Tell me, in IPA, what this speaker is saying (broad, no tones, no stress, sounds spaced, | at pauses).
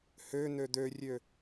h ø n̪ ø d̪ ø rʲ ø